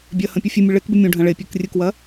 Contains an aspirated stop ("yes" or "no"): no